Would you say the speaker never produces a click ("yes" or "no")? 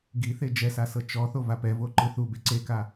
no